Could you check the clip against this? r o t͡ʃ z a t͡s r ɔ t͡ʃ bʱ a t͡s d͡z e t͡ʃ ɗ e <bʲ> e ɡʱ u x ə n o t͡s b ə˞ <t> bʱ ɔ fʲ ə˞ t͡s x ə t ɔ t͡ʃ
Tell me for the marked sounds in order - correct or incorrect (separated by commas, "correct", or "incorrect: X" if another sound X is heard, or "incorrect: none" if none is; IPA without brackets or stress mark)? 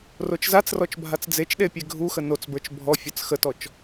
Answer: incorrect: pʲ, incorrect: t͡ʃ